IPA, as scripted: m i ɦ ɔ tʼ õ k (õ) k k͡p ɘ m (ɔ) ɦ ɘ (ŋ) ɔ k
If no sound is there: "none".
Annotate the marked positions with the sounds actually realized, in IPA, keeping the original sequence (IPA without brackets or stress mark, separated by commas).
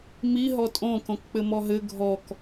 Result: õ, ɔ, ɡʱ